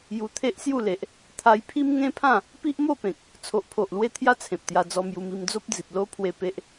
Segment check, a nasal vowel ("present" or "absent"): present